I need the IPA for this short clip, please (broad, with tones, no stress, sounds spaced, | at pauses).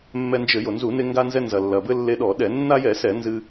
mː ɛ˧ n d͡ʒ ɘ˧˩˧ j o˩ n z u˧˩˧ n e˧ ŋ ɡ a˧ n z ɛ˧ n z ɐ˩ lː ɐ˩ b ɘ˧ lː e˧ ɗ ɔ˧˩˧ ɗ ɛ˧˩˧ nː a˧ j ɛ˧˩˧ s ɛ˧˩˧ n z ɨ˧